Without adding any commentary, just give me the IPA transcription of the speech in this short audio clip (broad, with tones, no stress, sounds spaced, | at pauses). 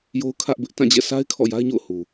j o˦ ʊ̯ kʰ ä˦ ʔ b ɪ˦ ʔ t ã˦˨ d͡ʑ ɛ̰˦˨ s a˦ ɪ̯ kʰ ɔ̰˦˨ j a˦ ɪ̯ ɲ o̰˦˨ ʊ̯ h u˨